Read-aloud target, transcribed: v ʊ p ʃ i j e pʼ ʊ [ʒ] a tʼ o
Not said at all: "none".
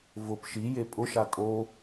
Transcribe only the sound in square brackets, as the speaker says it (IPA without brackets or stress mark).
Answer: ʃ